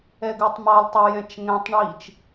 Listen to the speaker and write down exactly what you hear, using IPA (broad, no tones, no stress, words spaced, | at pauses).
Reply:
ɛɡʉtˤmɑlˠtˤo jɛ̃t͡ʃŋɛ̃tˤɳiːt͡ʃ